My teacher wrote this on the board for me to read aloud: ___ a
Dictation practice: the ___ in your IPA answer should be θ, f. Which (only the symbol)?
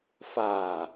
f